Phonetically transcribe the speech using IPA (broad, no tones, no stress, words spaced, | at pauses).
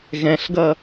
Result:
ɣɛ̃ɬɡʌ